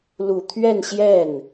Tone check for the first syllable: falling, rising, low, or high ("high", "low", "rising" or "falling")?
low